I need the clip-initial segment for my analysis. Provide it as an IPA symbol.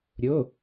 ɾʲ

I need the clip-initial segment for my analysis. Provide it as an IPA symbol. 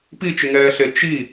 p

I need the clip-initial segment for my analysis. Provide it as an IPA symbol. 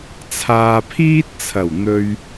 t͡sʰ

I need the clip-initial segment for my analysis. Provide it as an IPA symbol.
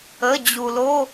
ə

